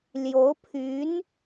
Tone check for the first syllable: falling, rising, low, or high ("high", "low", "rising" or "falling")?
rising